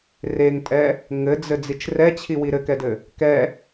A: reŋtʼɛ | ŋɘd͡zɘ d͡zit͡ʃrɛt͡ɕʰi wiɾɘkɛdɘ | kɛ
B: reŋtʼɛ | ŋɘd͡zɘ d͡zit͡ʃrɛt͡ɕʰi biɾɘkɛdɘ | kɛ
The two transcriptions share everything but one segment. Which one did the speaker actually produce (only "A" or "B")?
A